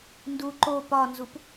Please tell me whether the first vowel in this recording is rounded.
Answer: yes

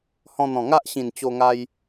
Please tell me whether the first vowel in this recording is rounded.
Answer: yes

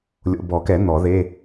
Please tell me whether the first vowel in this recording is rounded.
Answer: yes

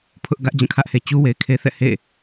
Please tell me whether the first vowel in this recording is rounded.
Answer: yes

